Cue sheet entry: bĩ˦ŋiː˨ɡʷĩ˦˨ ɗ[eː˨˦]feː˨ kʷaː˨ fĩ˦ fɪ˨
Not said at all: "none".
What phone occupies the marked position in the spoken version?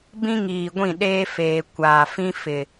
eː˦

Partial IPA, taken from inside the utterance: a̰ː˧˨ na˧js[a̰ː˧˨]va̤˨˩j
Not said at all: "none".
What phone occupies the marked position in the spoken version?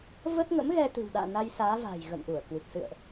aː˨˦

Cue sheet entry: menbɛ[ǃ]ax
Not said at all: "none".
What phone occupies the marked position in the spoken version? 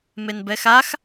x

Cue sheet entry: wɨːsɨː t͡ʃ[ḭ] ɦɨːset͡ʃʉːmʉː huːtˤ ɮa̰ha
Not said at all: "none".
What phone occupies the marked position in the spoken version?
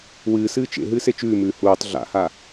ḛ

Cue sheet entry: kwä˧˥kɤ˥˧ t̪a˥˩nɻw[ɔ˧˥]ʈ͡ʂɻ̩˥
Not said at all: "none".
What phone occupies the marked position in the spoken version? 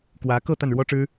ɔ˥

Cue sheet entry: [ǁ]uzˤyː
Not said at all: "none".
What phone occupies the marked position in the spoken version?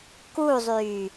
k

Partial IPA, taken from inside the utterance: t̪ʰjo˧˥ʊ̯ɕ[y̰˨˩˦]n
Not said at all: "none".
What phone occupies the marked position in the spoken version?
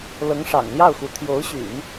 y̰˨˩˦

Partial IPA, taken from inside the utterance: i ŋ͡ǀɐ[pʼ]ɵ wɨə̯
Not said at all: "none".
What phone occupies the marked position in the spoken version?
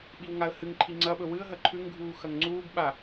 ɓ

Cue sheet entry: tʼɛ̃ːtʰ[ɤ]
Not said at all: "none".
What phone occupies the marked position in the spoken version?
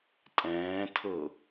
ɤ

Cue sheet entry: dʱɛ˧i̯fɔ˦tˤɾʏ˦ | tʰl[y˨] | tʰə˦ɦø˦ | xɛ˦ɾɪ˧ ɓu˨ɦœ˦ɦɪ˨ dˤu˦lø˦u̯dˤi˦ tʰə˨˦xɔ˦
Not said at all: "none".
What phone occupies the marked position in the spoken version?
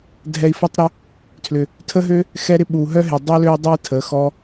ʏ˨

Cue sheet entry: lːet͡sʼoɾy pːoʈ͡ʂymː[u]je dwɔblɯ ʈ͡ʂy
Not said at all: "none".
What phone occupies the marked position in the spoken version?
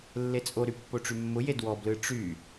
ʊ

